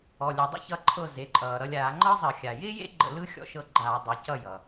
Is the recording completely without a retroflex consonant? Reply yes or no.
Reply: yes